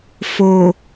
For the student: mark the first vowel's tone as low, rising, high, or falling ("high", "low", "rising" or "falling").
low